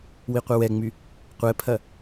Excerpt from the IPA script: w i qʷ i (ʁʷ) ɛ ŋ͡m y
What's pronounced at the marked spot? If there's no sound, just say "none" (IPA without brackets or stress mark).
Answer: w